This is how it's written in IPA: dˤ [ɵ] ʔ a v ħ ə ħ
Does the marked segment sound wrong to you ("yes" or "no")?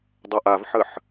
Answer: no